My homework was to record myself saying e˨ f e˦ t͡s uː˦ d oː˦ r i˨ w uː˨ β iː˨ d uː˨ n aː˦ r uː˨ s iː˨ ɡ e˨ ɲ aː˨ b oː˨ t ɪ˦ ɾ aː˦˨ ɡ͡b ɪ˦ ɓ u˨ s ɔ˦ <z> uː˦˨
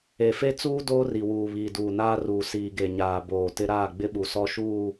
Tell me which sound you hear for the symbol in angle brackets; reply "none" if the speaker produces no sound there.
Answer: ʃ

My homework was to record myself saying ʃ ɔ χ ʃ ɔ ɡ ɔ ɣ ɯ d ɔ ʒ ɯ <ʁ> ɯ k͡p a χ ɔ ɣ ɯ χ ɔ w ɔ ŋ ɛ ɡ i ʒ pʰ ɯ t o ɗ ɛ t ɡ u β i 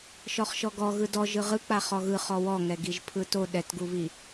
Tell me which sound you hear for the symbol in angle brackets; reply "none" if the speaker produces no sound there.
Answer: ʁ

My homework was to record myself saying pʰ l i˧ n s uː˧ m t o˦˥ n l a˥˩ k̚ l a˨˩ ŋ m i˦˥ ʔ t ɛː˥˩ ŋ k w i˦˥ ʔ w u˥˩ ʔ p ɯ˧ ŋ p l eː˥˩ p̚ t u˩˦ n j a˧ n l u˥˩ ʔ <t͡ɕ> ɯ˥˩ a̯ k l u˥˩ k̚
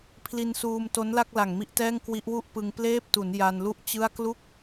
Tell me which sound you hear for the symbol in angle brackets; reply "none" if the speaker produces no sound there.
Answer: t͡ɕ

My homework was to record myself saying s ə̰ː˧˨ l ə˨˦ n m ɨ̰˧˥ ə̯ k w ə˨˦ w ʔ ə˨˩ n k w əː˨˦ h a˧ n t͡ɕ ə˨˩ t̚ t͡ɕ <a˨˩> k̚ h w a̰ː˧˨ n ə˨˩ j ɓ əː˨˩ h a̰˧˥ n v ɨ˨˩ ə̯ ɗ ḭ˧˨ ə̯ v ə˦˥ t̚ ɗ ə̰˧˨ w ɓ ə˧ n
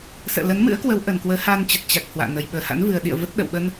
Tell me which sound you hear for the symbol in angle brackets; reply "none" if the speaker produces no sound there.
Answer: a˨˩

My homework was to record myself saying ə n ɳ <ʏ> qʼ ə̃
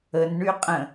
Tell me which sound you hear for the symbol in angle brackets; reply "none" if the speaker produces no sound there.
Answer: y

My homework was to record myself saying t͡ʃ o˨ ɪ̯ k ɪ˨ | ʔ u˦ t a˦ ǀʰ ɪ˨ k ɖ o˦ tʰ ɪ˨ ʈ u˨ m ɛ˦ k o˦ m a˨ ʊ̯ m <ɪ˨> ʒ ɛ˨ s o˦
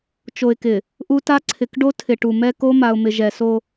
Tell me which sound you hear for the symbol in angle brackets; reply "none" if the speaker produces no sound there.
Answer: ɪ˨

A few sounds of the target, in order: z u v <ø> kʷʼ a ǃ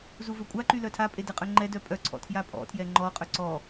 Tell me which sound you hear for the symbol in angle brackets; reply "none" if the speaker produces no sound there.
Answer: ø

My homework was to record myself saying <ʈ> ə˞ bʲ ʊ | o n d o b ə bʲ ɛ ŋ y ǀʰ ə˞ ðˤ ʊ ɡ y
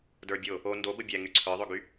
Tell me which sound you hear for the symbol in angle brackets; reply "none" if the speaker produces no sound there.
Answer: d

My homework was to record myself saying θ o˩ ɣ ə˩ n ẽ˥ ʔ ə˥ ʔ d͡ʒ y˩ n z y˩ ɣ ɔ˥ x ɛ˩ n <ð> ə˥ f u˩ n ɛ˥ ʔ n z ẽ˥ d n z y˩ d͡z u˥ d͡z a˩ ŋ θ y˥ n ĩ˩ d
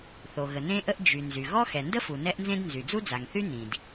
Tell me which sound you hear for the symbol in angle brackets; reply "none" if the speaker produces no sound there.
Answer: d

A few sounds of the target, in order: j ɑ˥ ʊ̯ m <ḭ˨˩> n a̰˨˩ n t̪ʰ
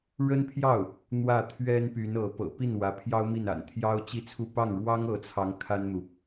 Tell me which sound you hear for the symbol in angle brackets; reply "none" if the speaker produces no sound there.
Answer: i˥˩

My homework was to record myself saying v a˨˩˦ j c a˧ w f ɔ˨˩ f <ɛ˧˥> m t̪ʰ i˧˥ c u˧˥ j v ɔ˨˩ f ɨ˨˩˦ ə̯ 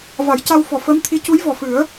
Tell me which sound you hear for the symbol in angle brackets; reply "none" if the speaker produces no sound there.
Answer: ə˧˥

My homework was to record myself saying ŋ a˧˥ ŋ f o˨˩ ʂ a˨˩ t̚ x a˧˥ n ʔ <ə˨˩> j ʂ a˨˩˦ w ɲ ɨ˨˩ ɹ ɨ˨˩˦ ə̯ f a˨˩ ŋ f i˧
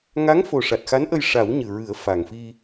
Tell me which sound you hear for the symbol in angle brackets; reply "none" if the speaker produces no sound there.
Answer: ə˧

